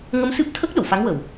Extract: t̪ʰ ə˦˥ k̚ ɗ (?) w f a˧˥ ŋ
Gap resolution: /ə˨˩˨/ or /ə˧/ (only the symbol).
ə˨˩˨